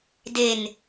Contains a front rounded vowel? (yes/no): no